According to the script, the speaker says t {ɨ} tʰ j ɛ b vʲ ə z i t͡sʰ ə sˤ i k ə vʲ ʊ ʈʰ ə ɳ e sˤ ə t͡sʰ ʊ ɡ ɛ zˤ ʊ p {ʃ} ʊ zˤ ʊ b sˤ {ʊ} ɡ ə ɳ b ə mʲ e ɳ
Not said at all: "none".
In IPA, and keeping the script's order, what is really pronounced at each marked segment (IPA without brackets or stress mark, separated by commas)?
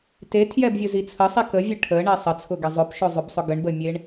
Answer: e, ʃ, ʊ